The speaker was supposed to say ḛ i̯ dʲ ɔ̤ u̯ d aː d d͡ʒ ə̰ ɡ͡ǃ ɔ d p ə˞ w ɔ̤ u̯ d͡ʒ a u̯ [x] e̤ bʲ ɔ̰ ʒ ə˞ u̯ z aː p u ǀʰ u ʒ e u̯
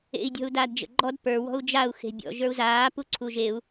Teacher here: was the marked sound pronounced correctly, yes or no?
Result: yes